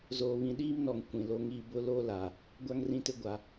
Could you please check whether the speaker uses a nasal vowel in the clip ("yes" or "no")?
yes